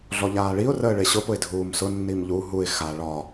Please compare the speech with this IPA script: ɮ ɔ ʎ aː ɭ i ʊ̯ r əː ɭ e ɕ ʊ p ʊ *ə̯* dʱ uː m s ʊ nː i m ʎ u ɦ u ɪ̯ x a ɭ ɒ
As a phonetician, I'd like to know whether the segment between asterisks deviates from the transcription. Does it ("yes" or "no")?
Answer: yes